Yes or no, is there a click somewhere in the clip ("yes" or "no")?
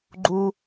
yes